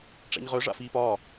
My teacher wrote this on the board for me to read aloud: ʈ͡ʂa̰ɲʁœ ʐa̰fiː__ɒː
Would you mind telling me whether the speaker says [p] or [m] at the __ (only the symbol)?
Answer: p